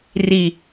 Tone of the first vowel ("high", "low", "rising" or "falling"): low